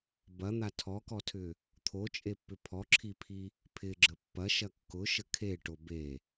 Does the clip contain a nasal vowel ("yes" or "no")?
no